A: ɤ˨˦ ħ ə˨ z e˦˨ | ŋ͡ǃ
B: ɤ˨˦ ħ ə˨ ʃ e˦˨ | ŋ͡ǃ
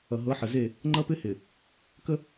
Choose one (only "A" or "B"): A